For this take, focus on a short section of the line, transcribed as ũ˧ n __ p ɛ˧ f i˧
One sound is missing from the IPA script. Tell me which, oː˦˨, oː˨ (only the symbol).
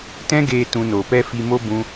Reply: oː˨